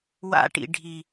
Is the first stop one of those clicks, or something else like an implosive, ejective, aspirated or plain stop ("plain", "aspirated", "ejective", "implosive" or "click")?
plain